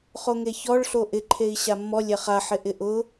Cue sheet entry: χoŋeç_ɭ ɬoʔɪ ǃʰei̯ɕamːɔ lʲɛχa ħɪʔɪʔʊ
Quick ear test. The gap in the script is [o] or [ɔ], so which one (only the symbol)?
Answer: ɔ